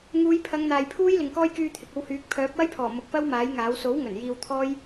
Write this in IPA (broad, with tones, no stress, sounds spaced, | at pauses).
ŋ uː˨˧ j pʰ ɐ˨˧ ŋ n̪ aː˨ j pʰ uː˥ j l ɪ˨ ŋ k ɔː˥ j k yː˧ t̪ʰ ɪ˨ k̚ o˧ w h yː˨˥ k̚ pʰ œː˨˥ p̚ w ɐ˥ j pʰ ɔː˨˩ m ʊ˨˥ k̚ p ɐ˥ w m aː˨˥ j ŋ aː˨˥ w s o˨˥ w ŋ ɵ˨˩ n j iː˧ w t̪ʰ ɔː˥ j